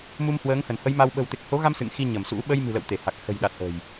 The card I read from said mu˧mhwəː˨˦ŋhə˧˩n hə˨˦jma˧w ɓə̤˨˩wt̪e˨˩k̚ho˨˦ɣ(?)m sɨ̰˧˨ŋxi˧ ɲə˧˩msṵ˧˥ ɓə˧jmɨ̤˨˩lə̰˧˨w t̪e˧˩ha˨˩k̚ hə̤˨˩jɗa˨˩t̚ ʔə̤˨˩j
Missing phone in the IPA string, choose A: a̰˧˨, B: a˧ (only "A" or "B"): B